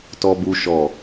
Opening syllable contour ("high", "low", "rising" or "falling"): high